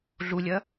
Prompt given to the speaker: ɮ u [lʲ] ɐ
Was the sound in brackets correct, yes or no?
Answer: yes